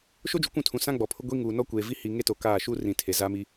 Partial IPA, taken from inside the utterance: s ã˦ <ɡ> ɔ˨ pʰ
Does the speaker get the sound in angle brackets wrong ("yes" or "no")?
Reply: yes